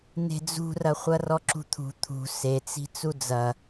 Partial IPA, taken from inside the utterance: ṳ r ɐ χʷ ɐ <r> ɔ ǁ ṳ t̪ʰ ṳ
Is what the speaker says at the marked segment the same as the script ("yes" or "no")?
yes